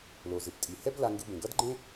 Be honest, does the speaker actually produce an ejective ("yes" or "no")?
yes